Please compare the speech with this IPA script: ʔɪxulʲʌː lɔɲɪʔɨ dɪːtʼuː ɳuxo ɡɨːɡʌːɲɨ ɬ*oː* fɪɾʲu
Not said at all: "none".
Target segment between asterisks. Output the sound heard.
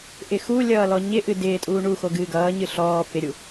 ɔː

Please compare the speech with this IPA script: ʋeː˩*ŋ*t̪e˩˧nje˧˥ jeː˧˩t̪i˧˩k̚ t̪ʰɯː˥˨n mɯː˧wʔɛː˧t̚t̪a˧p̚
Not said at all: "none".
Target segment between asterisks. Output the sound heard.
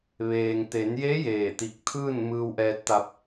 ŋ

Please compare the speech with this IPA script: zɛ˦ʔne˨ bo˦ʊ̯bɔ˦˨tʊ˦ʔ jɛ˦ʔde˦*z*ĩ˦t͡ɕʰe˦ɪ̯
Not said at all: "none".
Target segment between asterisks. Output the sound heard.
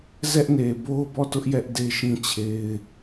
ʃ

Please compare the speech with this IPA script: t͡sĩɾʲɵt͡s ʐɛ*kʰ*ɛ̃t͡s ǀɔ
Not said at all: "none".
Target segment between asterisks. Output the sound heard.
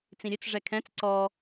kʰ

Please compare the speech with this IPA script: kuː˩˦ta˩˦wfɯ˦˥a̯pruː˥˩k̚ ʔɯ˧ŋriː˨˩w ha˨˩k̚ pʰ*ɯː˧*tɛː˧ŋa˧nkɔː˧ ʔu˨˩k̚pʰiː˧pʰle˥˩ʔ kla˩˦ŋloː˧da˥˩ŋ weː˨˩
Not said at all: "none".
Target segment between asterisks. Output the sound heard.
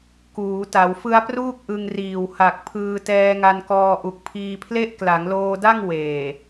ɯː˧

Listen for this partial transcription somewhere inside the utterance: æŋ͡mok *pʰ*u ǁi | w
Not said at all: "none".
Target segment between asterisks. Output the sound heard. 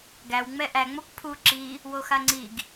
pʰ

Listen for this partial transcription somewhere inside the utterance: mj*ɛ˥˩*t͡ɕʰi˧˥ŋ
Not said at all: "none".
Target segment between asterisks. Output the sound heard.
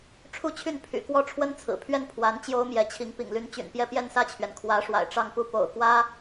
ɛ˧˥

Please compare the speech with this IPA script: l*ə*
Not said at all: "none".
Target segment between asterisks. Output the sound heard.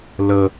ə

